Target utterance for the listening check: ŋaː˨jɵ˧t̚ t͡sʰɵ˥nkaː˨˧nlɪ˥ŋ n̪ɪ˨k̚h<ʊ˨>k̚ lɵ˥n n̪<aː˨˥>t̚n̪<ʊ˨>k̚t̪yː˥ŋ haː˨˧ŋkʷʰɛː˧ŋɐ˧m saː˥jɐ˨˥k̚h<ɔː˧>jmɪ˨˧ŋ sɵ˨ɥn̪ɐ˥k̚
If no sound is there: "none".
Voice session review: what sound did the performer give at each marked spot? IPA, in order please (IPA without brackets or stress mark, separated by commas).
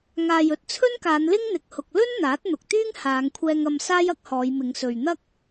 ʊ˨, aː˨˥, ʊ˨, ɔː˨˧